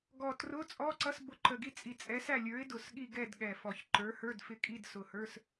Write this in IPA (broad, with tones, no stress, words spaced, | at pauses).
ɡɔ˨˩ trʊ˧˥˧ t͡sʼɔ˧˥˧ǀʌ˧˥˧sbʊ˨˥ ǃə˨˩ɡi˦˨t͡sʼi˨˩ t͡sʼɛ˨˥sæ˦˨lʲə˞˨˥ɪ̯ dʊ˨˩sɠi˦˨ɡɛ˦˨d ɠɛ˨˩fɔ˨˩çǃə˞˨˥hə˞˧˥˧d fɪ˦˨kʼi˧˥˧d sʊ˨˩hə˞˧˥˧s